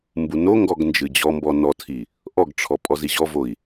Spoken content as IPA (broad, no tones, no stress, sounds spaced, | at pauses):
m b u n o ŋ ɡ ɔ ɡ n d͡ʒ ɨ d͡ʑ ɔ m b ɔ n ɔ tʰ i | ʔ ɔ ɡ ʈ͡ʂʰ ɔ pʼ ɔ z i ʑ ɔ v o i̯